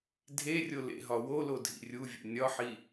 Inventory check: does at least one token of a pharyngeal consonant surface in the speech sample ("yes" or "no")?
yes